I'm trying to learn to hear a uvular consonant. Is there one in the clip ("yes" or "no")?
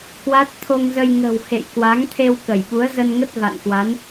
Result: no